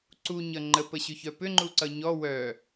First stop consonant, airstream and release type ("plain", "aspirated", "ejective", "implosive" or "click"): click